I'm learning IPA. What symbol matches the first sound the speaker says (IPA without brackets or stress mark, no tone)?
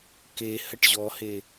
k